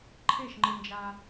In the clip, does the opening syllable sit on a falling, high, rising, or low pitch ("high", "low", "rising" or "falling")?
falling